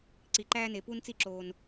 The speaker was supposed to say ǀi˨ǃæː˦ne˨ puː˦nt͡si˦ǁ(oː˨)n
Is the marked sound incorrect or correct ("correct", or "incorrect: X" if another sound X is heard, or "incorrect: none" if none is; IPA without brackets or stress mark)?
correct